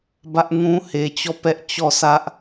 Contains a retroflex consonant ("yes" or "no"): no